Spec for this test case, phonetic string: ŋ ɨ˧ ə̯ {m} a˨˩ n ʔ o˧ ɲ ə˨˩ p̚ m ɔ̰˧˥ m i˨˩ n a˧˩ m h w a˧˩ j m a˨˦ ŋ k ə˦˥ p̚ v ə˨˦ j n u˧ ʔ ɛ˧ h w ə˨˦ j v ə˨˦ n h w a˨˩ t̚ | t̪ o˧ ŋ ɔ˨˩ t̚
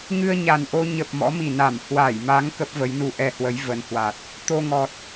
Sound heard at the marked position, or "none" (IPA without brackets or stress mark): ɲ